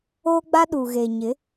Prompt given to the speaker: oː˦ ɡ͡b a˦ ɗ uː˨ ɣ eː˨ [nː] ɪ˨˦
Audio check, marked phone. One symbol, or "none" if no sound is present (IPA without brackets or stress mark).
ɲ